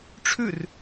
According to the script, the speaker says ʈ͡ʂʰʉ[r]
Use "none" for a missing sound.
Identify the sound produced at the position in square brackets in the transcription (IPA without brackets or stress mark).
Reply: r